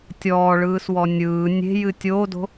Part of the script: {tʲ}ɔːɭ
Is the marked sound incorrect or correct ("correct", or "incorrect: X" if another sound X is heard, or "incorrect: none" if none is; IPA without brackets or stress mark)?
correct